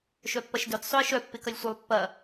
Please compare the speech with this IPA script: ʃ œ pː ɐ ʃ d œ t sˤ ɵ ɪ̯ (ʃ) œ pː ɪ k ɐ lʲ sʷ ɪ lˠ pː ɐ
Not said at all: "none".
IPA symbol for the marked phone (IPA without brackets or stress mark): ʃ